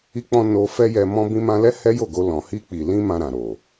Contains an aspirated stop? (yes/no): no